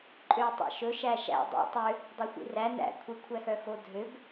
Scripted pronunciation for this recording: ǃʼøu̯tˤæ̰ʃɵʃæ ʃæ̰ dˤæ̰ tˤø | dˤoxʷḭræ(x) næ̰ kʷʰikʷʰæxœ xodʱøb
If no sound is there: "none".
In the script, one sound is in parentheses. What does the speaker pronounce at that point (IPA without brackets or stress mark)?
none